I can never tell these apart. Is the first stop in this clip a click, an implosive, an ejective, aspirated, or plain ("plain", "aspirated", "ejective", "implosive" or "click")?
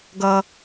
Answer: plain